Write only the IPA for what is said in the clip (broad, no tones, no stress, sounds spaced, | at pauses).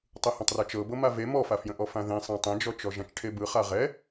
tˤ ɯ h ã tˤ r ʌ t͡ʃ ɤ b ɤ m a v e m ɔ f a f j ə̃ ʔ ɔ f ã ð ẽ sˤ ã tˤ ẽ d͡ʒ ɔ t͡ʃ ɔ ʒ ã t͡ʃ ʈʰ e b ɯ χ a ʁ ɛ